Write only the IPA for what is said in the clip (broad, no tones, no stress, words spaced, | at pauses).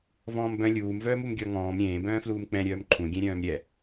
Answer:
vɔ̃ːmbœ̃ lʲuːm vœːmumɡʲɔ ŋɔ̃ːm ɾʲẽː bœ̃ːfluːmk͡pɛ̃ ɾʲœːmǃʰũ ɡʲɛ̃ɾʲœ̃ːmɾʲɛ